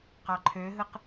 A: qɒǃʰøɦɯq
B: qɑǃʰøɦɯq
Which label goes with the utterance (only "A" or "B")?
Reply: B